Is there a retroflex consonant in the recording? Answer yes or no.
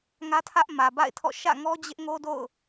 no